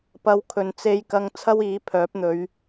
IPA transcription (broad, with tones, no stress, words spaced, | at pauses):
pɐ˧wkʰɵ˨nt͡se˧jkɐ˧ŋ t͡sʰɐ˥wiː˨˥pʰœː˨˥p̚n̪ɵ˨˧ɥ